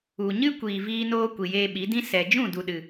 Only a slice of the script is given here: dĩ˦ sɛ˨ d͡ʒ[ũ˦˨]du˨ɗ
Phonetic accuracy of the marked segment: correct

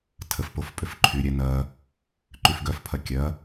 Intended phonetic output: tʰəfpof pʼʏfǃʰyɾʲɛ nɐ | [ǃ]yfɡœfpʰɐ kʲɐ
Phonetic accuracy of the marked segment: correct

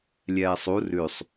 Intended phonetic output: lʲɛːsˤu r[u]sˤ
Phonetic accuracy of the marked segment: incorrect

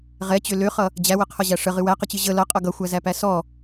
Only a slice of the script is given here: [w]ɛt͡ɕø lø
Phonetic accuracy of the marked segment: incorrect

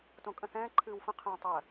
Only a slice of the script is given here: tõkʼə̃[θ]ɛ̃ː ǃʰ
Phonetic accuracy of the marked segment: correct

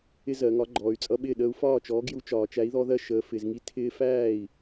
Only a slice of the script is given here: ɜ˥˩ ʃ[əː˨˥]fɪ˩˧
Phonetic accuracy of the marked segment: correct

